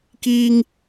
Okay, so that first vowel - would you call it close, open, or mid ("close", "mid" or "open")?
close